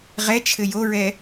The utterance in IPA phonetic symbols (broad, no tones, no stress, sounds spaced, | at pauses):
ʁ ɛ t͡ʃʰ ɘ j o ɹ ɛ